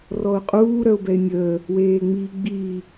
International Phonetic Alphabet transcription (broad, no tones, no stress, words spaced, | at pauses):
rɔʊ̯qʼuː ɾœʊ̯bɛɪ̯nʲəː | weːŋ͡miːɡ͡biː